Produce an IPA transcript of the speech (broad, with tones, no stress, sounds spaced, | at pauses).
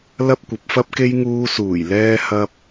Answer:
l ɐ˥ p̚ kʷ ɐ˨˥ p̚ f ɐ˥ p̚ k e˥ j ŋ uː˧ s uː˨˩ j l ɛː˥ h ɐ˥ p̚